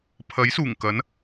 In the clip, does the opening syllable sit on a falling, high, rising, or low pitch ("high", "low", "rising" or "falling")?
rising